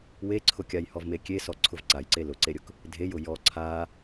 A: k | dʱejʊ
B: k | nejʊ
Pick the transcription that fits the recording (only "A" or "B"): A